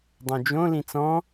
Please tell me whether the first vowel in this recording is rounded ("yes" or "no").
yes